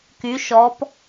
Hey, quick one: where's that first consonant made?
velum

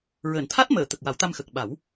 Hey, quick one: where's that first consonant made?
tongue tip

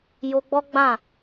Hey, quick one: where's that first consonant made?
palate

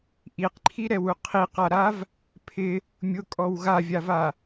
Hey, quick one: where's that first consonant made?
throat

